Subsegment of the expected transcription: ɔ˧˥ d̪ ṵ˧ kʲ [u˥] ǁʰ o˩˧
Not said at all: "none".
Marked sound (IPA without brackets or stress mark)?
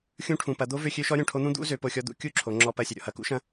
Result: u˥